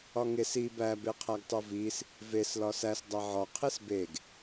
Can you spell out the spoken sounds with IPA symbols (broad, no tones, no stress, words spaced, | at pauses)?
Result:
ɒŋes i bæ beqʰæɡtˤovis | ves lɒsæs dˤæʕɒ qʰesbeɡ